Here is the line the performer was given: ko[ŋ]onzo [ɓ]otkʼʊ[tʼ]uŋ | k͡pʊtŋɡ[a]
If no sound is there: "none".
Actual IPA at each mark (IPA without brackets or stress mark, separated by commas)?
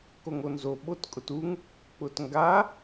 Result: ŋ, ɓ, t, a